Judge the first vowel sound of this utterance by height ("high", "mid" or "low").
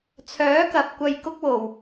mid